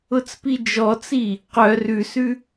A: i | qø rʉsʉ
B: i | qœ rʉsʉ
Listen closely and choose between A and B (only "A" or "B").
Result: B